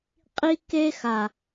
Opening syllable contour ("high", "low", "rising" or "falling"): high